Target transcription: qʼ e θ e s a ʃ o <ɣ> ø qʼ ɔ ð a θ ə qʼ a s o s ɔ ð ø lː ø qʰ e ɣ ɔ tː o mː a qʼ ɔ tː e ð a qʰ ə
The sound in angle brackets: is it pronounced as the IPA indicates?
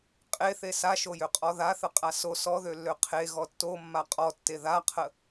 no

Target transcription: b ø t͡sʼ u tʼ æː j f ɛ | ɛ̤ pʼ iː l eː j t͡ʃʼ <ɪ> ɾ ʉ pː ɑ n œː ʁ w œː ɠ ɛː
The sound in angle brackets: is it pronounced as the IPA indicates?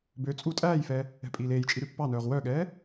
no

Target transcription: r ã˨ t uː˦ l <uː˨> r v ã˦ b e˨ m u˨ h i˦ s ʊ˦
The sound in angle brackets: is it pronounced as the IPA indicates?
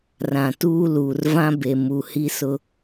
yes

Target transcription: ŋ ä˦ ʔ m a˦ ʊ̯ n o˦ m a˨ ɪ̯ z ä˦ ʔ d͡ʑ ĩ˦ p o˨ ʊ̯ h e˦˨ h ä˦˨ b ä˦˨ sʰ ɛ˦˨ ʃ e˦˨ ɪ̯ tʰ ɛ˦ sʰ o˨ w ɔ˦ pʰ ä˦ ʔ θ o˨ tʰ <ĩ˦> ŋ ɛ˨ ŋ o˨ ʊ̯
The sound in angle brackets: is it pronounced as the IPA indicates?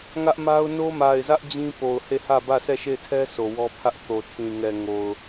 no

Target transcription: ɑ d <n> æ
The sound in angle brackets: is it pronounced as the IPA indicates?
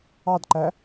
no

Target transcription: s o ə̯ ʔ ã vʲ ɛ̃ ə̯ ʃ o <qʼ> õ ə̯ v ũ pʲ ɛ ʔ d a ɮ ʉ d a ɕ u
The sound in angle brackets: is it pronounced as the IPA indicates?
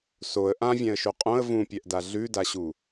yes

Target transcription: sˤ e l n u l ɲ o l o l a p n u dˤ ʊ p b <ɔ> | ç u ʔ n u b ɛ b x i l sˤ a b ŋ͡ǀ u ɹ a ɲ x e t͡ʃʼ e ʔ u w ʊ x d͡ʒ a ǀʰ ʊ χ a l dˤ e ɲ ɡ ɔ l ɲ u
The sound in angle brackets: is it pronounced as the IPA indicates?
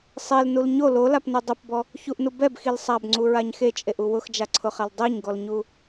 yes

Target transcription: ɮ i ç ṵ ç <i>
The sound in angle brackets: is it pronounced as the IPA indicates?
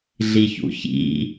no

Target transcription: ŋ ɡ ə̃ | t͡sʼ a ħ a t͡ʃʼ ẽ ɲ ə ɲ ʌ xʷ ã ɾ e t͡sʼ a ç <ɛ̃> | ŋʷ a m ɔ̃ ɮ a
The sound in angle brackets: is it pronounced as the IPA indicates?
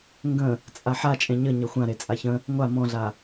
no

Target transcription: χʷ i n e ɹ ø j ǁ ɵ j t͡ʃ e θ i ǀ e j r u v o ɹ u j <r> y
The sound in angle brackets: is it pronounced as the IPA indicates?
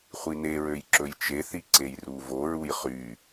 no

